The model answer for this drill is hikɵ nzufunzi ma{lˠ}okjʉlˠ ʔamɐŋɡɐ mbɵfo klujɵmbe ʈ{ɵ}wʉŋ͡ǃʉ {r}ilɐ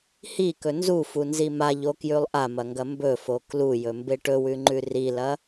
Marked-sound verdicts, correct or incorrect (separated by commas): incorrect, correct, correct